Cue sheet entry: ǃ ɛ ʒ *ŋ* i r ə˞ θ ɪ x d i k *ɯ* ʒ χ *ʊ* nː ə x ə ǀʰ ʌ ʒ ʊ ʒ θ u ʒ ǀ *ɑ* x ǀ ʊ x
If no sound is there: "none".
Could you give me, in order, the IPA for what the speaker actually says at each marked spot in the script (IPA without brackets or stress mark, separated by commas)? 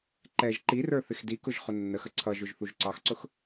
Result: ǃ, ʊ, ʊ, ɑ